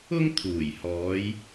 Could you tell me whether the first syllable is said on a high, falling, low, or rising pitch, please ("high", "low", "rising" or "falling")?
high